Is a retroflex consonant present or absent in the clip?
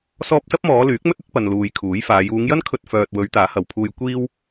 absent